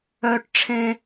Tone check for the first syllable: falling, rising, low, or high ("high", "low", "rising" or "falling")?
high